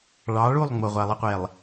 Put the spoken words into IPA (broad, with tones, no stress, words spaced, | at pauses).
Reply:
ɭɑ˨˦ɭu˦˨lˠ ŋ͡mo˨ʁʷa˨lˠə˦qʷe˨lˠ